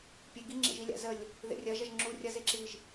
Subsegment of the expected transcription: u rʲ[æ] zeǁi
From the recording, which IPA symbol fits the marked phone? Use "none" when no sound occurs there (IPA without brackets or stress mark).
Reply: ɐ